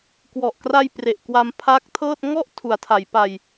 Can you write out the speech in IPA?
k w ɔ˨˩ ʔ k r a˧ j p r e˨˩ ʔ k w a˧ m pʰ a˦˥ k̚ tʰ ɤː˥˩ t̚ ŋ ɔ˥˩ ʔ tʰ u˩˦ a̯ tʰ a˩˦ j p a˧ j

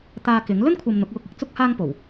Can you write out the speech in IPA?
t̪ aː˧ k ɪ˨˥ ŋ l ɵ˥ n kʷʰ ɐ˨ m n̪ ʊ˨˥ k̚ w ʊ˧ k̚ ɪ˨˥ k̚ t͡s ʊ˥ k̚ h aː˥ ŋ p o˨˩ w

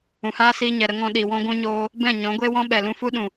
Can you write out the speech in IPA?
ũ˨ h aː˦ s iː˧ ɲ ɛ˨ ɾ ə˧ ŋ ɔ̃˧ ɗ i˨ w ɔ̃˦ ɡʷ ũ˧ ɲ oː˧ | b ɛ̃˦˨ ɲ ɔ̃˨˦ ɡʷ eː˦ w ɔ̃˦ ɓ ɛ˨ l ũ˧ f u˦ ɗ ũ˨

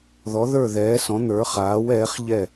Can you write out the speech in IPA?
ð ɔ˩˧ ð ə˞˧˩ ð ɛː˩˧ s ɔ̃˩˧ n̪ ə˞˩˧ χ aː˩˧ w ɛː˩˧ χ ʎ ɛ˧˩

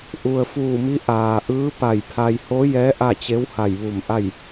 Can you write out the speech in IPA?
ʔ u˩ ə̯ f uː˧˩ m i˧˥ ʔ aː˩ ʔ ɯː˧˥ p a˧˩ j pʰ a˧ j h o˧˥ j ɛː˧˥ ʔ a˥˨ t͡ɕ e˧˥ w h a˧˩ j ʋ u˧˩ m ʔ a˥˨ j

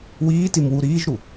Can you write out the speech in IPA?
w iː t i m w u ɾ iː ʒ ɾ u

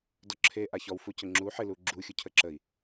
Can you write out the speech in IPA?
d ɔ ǁʰ e ʔ a ç ɔ w f u c ə ŋ͡ǁ u ħ ɪ l u ɡ͡ǁ u xʲ u cʰ ə ǁ ə i̯

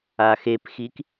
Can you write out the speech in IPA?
a x e p x i k

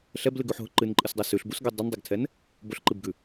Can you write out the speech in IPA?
ɬ ɛ b l ɨ ɡ ʉ ħ ɦ ʊ ǃ ɨ n ǃʼ ɨ s dˤ ɛ s ʉ ɬ b u s ɡ ɛ dˤ ɨ n dˤ ɛ ɡ tʰ ɛ n | b ʊ ɬ ǃ ɨ b ɡ ʉ

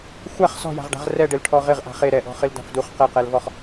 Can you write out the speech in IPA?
xʷ a χ s ɔ̤ j a̤ ʁ ɖ a̤ ʁ r ɛ ɖ ɪ l ʈʰ ɔ ʁ ɪ ʁ ʔ a̤ χ e ɾ ɛ ʔ ɔ̤ χ ɪ l d a̤ f d u χ q ɛ q ɛ l v ɔ χ

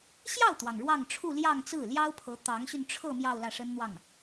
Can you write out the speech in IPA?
ɕ j ɑ˥˩ ʊ̯ t̪ w ɑ˩ ŋ ɻ w ɑ˥˧ ŋ ʈ͡ʂʰ u˥˧ l j ɑ˥˧ ŋ t͡s ɹ̩˥˩ l j ɑ˥ ʊ̯ pʰ ɤ˧˥ t̪ ɑ˧˥ ŋ ɕ y˧ n ʈ͡ʂʰ ɤ˥˧ m j ɑ˥˧ ʊ̯ l ä˥˩ ʂ ə˥ n n̪ w ɑ˥˩ ŋ

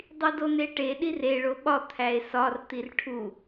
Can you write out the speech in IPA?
dˤ i d o n e ʈ e ɗ i r e ɭ o ɓ ɒ t̪ʰ æ e̯ s ɒ r t̪ i r ʈʰ u

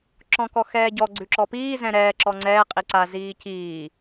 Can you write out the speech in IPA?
ǁ ɔ̃ k ɔ x ɛː ɟ ɔ ɡ͡ǀ ʉ ǁ ɔ p iː z ɛ̃ ɾ ɛː ǁ ɔ ŋ͡ǀ ɛː qʼ i ǀ a z iː c iː

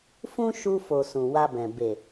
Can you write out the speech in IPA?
f ũ˦ ʃ u˧ f o˨ s ũ˨ w a˧ b ɛ̃˨ b e˨

